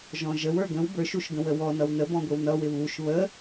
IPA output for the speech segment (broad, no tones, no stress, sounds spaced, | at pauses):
ʒ ɔ̃ ʒ ə w ə˞ ɡ ə̃ w b ə˞ ʃ u ʃ ɡ ə̃ w ə w ɔ n ʌ w n ə b ɔ̃ ɡʷ ɪ w n ʌ w ɪ β u ʃ β ə